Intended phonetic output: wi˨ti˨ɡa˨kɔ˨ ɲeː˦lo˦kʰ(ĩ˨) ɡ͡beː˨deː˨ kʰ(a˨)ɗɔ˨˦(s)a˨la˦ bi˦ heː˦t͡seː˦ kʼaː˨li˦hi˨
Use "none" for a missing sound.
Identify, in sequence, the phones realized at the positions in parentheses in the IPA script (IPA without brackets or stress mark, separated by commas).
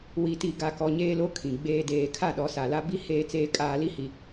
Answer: ĩ˨, a˦˨, s